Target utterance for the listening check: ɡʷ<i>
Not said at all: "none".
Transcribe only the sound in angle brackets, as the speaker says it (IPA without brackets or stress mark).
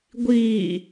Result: iː